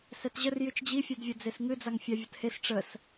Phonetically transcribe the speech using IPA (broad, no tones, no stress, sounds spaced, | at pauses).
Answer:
s ɛ t ʑ ə r j ɨ t͡ʃ d͡ʑ i fʲ ɛ d vʲ ə d͡z e s ŋ ɨ d͡z a ŋ fʲ a vʲ ə t h e s ʈ͡ʂ ə s